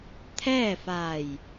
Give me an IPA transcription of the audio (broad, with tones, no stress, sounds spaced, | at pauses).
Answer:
t̪ʰ ɛː˥˨ f a˧˩ j